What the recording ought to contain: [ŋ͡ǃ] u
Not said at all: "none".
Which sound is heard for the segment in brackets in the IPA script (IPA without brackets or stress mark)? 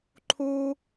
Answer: ǃʰ